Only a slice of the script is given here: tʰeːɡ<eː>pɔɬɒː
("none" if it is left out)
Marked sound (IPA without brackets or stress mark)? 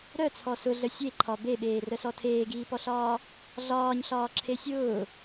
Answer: iː